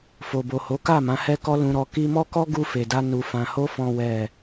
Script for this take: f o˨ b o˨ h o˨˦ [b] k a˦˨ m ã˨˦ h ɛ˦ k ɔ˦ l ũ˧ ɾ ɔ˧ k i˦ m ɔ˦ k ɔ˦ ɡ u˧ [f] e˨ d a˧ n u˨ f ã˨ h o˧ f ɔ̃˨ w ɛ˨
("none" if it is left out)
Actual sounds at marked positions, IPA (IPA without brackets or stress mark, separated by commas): none, f